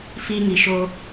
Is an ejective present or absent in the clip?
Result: absent